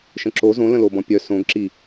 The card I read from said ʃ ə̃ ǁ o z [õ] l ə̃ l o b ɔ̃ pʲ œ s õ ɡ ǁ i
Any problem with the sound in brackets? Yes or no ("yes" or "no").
no